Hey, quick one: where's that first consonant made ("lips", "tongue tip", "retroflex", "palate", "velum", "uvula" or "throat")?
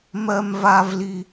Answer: lips